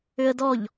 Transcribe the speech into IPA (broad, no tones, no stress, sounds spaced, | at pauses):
ʏ ə̯ d ɔ ʎ